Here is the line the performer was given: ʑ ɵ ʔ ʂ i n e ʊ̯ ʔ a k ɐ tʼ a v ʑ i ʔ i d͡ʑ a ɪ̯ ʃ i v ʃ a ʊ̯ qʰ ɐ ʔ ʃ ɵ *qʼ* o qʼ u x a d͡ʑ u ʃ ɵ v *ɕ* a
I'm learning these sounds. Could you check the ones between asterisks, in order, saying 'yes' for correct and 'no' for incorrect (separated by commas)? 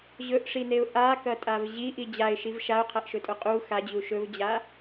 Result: no, no